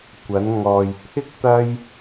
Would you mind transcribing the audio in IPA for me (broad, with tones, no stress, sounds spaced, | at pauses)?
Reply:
kʷ ɐ˨˧ n ŋ ɔː˨ j pʰ ɪ˥ k̚ t̪ ɐ˥ j